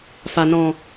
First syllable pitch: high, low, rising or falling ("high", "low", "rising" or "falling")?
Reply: low